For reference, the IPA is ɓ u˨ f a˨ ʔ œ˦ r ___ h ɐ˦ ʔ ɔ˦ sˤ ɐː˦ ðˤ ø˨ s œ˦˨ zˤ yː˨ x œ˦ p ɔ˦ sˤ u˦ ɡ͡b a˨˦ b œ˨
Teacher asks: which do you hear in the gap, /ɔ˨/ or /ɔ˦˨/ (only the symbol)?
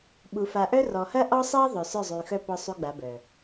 ɔ˨